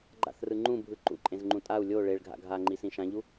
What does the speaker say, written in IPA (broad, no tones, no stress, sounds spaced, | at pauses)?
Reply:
ɡ͡ǃ a̰ θ r ɯ ŋ͡ǃ ũ bʱ ɯ ǃ ṵ ǃʼ ẽ z ŋ͡ǃ ũ tʼ a u̯ lʲ o ɭ e ɭ ɡʱ a̰ ɡʱ a ŋ͡ǃ i s ĩ ʃ ã ʎ u